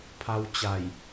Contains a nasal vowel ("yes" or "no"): no